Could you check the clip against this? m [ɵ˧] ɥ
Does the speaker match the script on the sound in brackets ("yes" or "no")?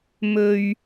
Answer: yes